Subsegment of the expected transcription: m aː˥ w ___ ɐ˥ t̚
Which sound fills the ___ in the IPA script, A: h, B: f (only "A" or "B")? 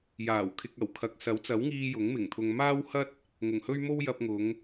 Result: A